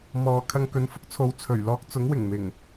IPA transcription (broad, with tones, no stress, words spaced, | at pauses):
mɔː˨ kʰɐ˧ŋkɵ˨˧nfʊ˥k̚t͡sʰo˨˧w t͡sʰɵ˨˩ɥlɔː˧k̚t͡sʊ˨˥ŋ wɪ˨˩ŋmɪ˨˩ŋ